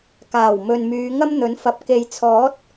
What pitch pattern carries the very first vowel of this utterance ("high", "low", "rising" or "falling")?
low